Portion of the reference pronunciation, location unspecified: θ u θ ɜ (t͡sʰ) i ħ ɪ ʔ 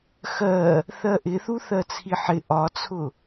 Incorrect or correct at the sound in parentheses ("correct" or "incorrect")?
correct